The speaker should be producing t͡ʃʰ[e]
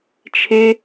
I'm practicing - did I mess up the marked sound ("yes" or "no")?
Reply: no